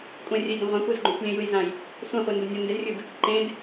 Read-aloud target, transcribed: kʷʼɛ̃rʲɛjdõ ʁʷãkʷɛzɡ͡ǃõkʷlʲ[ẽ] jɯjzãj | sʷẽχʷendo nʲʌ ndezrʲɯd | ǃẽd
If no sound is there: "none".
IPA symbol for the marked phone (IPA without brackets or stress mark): ẽ